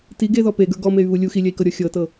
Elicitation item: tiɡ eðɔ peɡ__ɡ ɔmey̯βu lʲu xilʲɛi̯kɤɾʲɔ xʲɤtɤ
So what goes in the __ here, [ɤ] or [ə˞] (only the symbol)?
ə˞